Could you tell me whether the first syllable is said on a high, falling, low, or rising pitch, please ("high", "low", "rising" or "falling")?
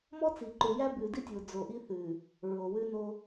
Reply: high